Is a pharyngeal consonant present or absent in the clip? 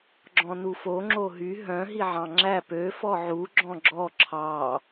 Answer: present